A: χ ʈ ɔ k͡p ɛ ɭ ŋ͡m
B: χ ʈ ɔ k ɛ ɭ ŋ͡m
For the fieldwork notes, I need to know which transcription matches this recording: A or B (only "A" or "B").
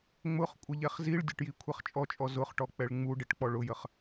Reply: A